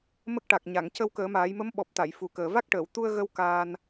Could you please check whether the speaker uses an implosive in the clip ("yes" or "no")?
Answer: yes